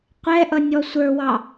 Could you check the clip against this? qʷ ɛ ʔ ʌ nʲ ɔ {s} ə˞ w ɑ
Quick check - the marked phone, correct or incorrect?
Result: incorrect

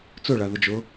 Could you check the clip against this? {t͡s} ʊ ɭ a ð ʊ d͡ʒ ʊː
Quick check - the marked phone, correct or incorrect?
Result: correct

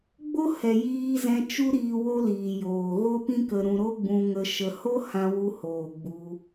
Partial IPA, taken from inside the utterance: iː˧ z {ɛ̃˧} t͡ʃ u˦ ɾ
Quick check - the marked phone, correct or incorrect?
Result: correct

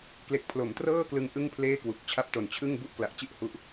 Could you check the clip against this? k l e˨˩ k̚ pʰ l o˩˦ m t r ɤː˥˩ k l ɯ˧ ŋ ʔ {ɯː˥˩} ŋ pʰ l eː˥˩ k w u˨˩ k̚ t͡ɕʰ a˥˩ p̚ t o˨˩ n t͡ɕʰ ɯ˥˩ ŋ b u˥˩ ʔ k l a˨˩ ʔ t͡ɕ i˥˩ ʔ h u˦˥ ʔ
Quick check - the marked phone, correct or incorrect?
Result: incorrect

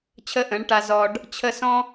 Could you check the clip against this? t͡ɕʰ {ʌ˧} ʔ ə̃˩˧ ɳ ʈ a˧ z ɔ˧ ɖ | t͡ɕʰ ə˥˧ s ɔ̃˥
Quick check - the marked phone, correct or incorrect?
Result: incorrect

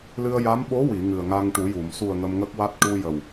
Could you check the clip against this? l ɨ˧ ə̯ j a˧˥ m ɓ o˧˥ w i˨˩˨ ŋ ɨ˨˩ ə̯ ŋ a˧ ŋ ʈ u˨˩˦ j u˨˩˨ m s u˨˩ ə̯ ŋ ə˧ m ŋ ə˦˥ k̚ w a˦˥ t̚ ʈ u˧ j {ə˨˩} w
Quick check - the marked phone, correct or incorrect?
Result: correct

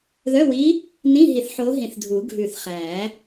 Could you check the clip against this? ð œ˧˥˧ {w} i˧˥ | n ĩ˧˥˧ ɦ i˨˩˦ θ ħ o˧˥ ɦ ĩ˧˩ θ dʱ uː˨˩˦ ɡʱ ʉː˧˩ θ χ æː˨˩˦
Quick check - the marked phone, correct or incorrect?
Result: correct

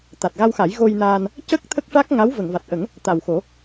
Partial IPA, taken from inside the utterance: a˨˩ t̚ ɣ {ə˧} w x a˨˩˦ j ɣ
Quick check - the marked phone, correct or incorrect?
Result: incorrect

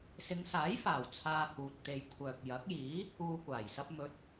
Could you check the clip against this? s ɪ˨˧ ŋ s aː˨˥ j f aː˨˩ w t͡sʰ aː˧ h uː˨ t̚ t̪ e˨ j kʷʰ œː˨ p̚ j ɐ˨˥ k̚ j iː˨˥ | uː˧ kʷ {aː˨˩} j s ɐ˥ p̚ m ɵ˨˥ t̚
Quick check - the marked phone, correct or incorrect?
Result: correct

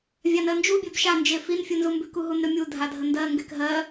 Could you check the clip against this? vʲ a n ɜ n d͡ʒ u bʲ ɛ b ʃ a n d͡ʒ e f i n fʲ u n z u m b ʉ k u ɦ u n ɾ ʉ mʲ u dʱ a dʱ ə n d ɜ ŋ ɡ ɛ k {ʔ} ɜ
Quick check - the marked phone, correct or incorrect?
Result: incorrect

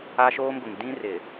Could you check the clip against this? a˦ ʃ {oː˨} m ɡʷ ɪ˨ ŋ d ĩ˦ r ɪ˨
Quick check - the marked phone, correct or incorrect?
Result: incorrect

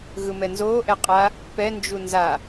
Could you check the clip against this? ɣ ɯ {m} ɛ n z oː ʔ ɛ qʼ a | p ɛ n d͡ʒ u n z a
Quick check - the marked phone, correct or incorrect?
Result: correct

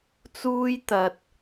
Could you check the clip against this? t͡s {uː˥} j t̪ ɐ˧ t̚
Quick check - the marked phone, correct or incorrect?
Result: correct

